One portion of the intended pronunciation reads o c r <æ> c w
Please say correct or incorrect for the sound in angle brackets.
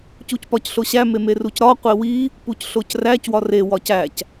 correct